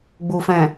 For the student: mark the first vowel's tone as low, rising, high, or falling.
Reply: low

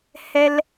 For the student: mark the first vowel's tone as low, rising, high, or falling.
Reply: high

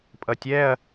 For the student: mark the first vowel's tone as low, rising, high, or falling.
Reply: low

